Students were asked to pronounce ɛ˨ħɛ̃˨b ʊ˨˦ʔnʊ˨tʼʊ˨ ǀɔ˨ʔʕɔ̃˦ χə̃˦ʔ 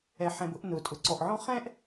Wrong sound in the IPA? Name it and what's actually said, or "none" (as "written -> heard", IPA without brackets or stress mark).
ə̃˦ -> ɛ̃˦